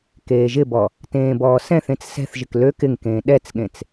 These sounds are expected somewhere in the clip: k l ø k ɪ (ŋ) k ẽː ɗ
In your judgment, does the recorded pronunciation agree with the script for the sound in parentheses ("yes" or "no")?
yes